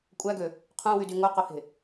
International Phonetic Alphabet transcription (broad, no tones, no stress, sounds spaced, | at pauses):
kʷʼ æ ɡ ø | qʰ ũ w y d y ŋ o q o h e̤